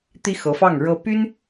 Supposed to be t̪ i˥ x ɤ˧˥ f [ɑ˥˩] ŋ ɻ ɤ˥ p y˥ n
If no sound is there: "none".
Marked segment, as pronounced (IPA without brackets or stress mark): ɑ˥˩